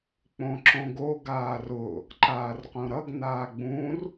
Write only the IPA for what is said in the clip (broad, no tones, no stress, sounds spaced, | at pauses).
k͡p õ ǁ õ ɡ o ɡ aː r ʊ | ǃ aː r q õ ɾ ʌ ɡ n aː ɡ͡b ũ r